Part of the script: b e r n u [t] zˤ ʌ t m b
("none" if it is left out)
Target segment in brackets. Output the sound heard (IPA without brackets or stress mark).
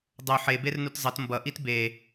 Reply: t